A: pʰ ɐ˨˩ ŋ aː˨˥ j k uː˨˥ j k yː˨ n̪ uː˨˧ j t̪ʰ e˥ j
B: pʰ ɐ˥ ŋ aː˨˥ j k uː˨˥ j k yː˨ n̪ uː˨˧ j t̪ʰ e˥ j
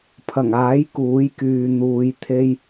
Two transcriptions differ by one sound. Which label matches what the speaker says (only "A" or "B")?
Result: A